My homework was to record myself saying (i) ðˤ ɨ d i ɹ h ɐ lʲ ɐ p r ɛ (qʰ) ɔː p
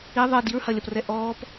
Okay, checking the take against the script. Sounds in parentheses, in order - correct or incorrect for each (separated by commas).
correct, incorrect